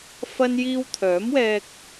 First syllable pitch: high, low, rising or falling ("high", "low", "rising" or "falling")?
high